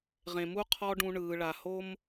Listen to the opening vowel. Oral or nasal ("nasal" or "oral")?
nasal